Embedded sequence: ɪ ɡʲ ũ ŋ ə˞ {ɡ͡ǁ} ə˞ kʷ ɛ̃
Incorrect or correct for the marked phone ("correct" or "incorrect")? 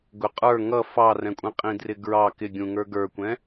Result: incorrect